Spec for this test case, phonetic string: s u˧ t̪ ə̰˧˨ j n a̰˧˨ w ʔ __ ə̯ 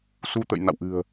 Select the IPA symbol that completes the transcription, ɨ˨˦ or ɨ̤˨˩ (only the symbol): ɨ̤˨˩